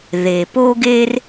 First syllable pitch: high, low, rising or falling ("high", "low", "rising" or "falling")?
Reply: low